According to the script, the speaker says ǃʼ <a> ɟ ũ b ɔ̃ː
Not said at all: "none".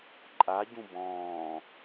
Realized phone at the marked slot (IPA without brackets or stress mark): a